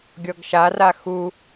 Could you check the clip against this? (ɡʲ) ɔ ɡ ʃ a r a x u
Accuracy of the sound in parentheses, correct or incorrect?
correct